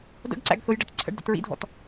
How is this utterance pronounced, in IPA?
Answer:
də̰ɡǀæ̰ɡ θʊjɖət ǀʰə̰ɖdə̰ tɹḭdʱɔ̰t

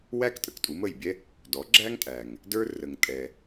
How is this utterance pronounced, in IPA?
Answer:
wæ˥k tʼə˩ktʼu˩˥mə˥˩jbʲɛ˥ | dɔ˩˥ɡ͡ǁæ˥ŋtʼæ˩ŋ | də˞˧rə˩ŋtʼɛ˩

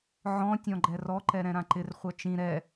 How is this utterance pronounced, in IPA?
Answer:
ʕɔ̃ tʲɔ̃ɡ͡ǃɛrɔ ǃɛɾɛ̃ɾãǃɪr χʷœt͡ʃĩ ɾɛ

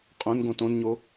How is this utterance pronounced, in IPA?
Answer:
qʼõn ɡõtõnɲo

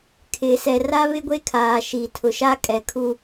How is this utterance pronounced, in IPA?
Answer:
kʰɪ˨ sɛ˨ra˦ βɪ˦ɡʷe˦kʰaː˨ ʃi˨tʰʊ˨ʃa˦ kʼɛ˨ kʰu˦

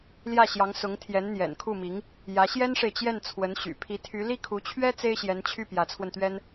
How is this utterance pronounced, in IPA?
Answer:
ljä˥˩ɕjɑ˧˥ŋ sʊ˧˥ŋ t̪ʰjɛ˧˥nn̪jɛ̰˨˩nkʰu˥˩mi˧˥ŋ | jä˧˥ ɕjɛ˥nʂe˨ɪ̯t͡ɕjɛ˥˩n t͡sʰwə˧˥nɕy̰˨˩ pʰi˧˥t̪ʰy˧˥ li˥˩kʰu˧˥t͡ɕʰɥɛ˥ t͡se˥ɪ̯ɕjɛ˧˥nt͡ɕʰy˥˩ pjä˧˥t͡sʰwə˧nt̪ɥɛ˥n

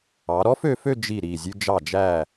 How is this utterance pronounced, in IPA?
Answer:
ɑ˩˧ɾɔ˥f ø˧fø˥˧ d͡ʒi˧˩ ɾi˧˩ zʲʉ˧ d͡ʒɑ˧˩d͡ʒæ˧˩

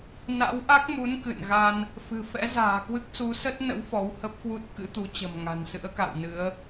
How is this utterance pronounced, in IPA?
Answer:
na̰˧˥wʔa˦˥k̚mu˨˦n kɨ̰˧˨nɣa˧n | fɨ̤˨˩ fɛ̰˧˥za̤ː˨˩ kwɨ˦˥k̚su˨˦sə˦˥t̚ nə̰˧˥w fɔ˨˦whə˦˥p̚kwu˦˥t̚ kɨ̰˧˥t̪u˨˦ t͡ɕə̤˨˩mŋa̤˨˩nsɨ̰˧˥ə̯ka̰˧˨w nɨ˨˦ə̯

